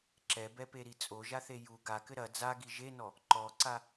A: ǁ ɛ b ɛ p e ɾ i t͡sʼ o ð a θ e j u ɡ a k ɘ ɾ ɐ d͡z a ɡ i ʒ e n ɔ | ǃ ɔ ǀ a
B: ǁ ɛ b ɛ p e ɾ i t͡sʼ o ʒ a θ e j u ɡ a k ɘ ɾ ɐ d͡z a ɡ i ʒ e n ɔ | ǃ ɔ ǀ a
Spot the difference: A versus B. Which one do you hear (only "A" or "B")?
B